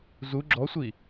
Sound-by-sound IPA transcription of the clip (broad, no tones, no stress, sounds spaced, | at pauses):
z u ɡ͡ǁ ɔ sʷ i